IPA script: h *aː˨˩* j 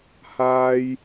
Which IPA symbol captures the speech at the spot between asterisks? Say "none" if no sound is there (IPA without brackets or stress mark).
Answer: aː˥